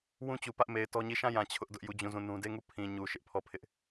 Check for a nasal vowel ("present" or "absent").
present